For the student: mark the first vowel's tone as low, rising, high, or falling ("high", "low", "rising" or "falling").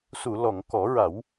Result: low